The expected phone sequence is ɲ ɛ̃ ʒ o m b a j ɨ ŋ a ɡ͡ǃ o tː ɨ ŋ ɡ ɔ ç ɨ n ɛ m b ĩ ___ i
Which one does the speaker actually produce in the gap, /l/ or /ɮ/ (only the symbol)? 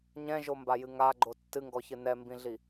ɮ